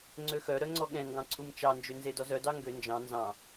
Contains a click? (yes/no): yes